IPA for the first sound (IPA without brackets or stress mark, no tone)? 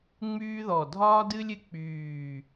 ŋ͡m